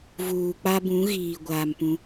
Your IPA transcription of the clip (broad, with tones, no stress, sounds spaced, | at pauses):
v uː˨ k͡p a˦ b ũ˨˦ ɣ iː˨ ɡʷ aː˨ m p ũ˦